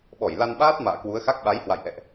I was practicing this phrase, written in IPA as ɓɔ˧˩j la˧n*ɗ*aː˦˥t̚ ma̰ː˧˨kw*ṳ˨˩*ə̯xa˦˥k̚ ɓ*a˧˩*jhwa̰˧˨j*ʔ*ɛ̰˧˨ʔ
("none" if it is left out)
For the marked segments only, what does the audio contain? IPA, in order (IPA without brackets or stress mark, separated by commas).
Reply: ɓ, u˨˦, a˨˦, ʔ